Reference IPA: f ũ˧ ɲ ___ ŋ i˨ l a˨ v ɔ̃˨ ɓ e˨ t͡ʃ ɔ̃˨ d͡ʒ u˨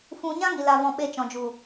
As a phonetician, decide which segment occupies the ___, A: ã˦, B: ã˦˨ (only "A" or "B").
A